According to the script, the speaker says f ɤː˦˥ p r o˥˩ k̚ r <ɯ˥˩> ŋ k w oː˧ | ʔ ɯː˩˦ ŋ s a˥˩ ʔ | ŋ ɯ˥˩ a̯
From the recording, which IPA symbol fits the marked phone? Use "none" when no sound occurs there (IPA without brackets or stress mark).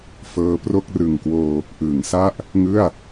ɯ˨˩